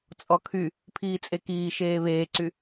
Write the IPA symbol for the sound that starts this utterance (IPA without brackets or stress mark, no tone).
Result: t͡sʼ